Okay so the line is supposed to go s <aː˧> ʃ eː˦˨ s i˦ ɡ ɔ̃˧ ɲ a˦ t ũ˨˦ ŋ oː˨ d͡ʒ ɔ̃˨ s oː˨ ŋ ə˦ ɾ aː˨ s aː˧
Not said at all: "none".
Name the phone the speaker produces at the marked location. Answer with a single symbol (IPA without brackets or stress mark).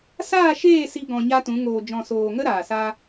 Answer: aː˦˨